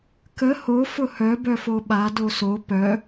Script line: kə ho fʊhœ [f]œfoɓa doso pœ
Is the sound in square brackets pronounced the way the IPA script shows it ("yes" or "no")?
no